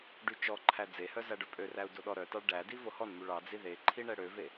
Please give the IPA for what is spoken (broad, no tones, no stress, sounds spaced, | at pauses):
ɖ y t͡ʃ ɔ ǃʰ æ d͡z e h œ z æ ɖ œ pʼ ø r æ u̯ d o ɗ ɔ ɾ œ t ɑ ɭ ɖ æ d i v o h ɔ n m y ɭ ɑ d͡z i ð e ǃʰ i ɳ ɛ ɽ ø v e